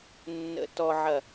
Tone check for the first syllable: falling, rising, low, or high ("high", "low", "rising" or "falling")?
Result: low